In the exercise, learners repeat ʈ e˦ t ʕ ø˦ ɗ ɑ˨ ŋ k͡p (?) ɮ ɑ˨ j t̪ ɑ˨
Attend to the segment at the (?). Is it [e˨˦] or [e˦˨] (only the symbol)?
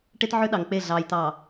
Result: e˦˨